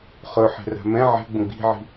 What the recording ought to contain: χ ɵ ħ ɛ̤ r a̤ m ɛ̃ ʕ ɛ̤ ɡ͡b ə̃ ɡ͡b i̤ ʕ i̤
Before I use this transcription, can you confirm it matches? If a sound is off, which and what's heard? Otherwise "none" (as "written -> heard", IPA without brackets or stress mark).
none